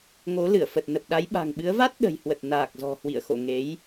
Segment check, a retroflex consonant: absent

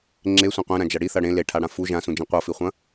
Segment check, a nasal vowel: present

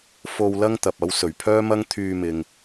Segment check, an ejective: absent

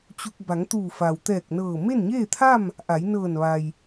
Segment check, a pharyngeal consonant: absent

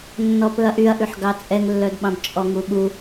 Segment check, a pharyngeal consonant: present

